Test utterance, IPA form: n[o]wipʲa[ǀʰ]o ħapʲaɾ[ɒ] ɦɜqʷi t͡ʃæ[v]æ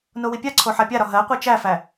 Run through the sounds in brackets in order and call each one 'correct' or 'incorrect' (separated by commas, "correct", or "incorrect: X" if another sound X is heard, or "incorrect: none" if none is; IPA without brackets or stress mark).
correct, correct, correct, incorrect: f